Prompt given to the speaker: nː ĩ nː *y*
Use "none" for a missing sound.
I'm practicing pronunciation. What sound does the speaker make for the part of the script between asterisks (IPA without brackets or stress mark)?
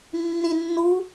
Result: u